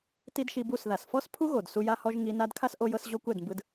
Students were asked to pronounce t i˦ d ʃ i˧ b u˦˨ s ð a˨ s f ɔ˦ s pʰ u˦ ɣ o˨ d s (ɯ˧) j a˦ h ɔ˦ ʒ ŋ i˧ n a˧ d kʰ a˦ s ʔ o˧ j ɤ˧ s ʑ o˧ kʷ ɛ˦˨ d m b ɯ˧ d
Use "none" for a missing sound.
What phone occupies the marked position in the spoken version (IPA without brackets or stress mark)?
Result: u˧